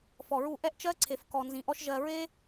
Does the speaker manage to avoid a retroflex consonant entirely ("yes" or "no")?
yes